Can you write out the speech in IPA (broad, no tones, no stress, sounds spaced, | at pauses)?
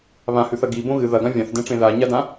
β ã h ʉ θ ɐ ɡ i b õ ɣ ɨ ð ɐ ɡ ã vʲ ã θ d ẽ ʈ͡ʂ ẽ ð a ɲ a d ã